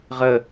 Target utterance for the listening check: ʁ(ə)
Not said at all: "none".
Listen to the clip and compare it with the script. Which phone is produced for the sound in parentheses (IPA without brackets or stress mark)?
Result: ə